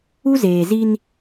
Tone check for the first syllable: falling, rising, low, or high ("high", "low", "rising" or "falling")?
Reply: high